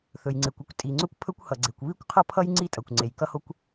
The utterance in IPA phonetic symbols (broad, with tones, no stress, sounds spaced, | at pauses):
θ ɵ˩ j ŋ͡ǀ e˩ kʷ ʌ˥ kʷ tʼ i˩ ŋ͡ǀ ɵ˥ kʷ pʰ ɵ˥ kʷ h ʌ˩ ɡ͡ǀ e˩ kʷ β i˥ kʷ qʰ ʌ˥ pʰ ʌ˥ j ŋ͡ǀ i˥ tʼ ʌ˩ kʷ ŋ͡ǀ e˩ j k ʌ˥ h o˥ kʷ